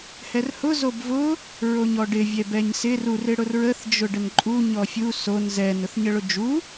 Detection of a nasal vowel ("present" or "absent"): absent